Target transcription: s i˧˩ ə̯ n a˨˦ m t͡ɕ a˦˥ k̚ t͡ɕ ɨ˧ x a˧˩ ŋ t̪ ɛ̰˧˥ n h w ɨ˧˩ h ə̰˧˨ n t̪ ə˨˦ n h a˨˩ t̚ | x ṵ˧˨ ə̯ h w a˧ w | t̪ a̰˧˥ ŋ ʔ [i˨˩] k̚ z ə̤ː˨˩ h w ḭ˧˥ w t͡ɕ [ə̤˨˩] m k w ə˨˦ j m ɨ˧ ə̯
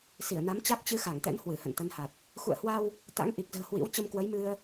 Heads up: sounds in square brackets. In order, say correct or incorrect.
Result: correct, incorrect: ə˧

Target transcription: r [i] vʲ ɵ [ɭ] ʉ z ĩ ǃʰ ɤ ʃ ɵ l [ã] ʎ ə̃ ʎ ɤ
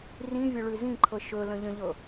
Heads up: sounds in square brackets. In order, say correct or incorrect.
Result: incorrect: ĩ, correct, incorrect: ə̃

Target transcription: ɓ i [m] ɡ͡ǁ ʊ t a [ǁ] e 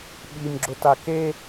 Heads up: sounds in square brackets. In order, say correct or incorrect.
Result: correct, incorrect: k

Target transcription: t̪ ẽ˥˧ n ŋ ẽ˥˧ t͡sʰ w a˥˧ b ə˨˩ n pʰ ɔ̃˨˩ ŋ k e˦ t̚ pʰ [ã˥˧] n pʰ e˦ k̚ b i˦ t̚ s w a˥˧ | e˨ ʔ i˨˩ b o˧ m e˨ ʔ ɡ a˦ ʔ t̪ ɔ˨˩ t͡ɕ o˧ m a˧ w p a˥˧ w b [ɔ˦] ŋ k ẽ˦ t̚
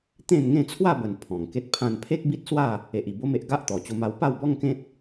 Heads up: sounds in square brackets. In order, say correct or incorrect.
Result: correct, correct

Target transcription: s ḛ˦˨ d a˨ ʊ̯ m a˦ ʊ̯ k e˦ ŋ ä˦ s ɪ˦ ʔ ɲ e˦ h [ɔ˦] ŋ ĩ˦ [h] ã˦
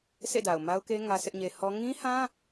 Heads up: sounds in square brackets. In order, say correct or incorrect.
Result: correct, correct

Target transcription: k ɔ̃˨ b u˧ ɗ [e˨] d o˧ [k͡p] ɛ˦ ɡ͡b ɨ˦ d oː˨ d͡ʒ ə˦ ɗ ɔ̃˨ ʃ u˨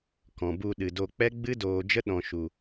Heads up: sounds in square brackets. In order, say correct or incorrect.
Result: incorrect: ɨ˨, correct

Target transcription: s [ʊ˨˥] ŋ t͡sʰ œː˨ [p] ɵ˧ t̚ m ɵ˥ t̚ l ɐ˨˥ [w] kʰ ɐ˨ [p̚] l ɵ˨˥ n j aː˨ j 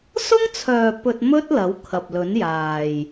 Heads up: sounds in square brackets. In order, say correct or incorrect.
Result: incorrect: ʊ˥, correct, correct, correct

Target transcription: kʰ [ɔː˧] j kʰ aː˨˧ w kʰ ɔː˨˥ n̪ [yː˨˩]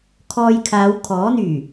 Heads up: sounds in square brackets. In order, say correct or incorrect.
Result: correct, correct

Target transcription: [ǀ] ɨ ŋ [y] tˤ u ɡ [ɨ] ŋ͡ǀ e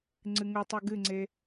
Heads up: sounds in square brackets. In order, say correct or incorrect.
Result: incorrect: ŋ͡ǀ, incorrect: u, correct

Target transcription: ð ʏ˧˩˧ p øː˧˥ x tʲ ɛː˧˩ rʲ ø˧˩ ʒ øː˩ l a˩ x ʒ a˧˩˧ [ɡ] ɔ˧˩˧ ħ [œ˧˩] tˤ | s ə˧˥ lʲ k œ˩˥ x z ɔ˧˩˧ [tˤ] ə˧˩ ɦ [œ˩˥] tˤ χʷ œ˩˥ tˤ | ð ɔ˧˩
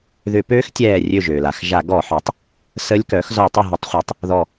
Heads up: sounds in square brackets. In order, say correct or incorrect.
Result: correct, incorrect: œ˩˥, correct, incorrect: ə˩˥

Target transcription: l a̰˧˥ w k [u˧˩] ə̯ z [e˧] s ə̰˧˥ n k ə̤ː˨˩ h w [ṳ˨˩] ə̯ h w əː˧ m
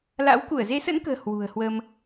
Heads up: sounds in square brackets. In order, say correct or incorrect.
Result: correct, incorrect: e˨˦, correct

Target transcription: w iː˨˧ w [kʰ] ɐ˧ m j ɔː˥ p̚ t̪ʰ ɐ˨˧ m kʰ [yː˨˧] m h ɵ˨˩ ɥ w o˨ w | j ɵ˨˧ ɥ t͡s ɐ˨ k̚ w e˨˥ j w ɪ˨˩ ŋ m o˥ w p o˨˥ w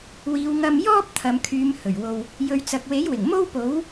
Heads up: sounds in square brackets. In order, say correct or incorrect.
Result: incorrect: ŋ, correct

